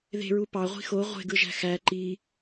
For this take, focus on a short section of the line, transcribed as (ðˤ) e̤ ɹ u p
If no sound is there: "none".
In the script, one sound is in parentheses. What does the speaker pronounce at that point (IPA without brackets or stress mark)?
ð